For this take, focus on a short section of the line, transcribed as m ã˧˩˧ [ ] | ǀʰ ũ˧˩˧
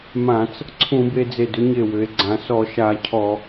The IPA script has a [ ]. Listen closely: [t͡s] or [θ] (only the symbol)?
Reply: t͡s